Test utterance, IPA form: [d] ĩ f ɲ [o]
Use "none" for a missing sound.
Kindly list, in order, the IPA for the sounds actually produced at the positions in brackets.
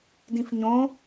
d, õ

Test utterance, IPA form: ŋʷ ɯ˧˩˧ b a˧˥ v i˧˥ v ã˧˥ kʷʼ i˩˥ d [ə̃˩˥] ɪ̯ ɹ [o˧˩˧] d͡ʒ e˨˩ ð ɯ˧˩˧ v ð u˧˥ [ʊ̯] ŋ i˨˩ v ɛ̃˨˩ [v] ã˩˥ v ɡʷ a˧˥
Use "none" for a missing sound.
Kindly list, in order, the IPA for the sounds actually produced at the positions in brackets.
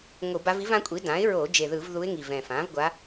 ã˩˥, o˧˩˧, ɪ̯, f

